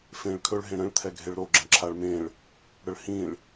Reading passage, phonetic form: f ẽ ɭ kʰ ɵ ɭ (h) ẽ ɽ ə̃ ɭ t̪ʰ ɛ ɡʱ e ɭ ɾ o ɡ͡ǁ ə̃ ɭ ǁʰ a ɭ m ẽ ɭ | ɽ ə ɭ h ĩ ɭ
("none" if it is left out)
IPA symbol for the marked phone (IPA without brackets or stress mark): ɦ